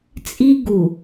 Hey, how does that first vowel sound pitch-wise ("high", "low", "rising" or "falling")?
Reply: high